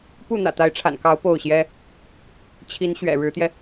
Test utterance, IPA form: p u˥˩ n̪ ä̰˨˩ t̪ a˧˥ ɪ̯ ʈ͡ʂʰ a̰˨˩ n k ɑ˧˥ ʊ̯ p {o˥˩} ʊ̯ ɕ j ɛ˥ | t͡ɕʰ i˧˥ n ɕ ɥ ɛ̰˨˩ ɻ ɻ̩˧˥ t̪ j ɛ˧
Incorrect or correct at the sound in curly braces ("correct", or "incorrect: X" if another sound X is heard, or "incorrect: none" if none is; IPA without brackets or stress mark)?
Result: correct